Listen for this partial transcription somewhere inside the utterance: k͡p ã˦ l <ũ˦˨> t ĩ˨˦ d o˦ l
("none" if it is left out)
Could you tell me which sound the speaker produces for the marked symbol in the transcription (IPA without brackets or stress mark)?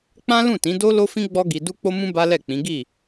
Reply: ũ˦˨